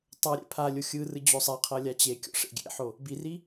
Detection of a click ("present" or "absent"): absent